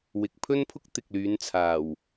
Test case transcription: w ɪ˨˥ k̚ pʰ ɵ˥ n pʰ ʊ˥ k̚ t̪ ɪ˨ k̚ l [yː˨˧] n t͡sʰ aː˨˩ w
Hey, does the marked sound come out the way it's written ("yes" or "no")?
yes